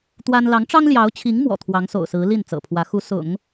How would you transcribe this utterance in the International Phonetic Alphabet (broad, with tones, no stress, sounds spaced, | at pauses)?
t̪ w a˥ n l ɑ˧˥ ŋ ʈ͡ʂ ɑ˥ ŋ l j ɑ˧˥ ʊ̯ t͡ɕʰ i˧˥ ŋ m w ɔ̰˨˩ t̪ʰ w ɑ˧˥ ŋ s o̰˨˩ ʊ̯ s ɹ̩˧˥ l i˥˩ n t͡s ɤ̰˨˩ pʰ w ä˧˥ x u˧˥ s ʊ̰˨˩˦ ŋ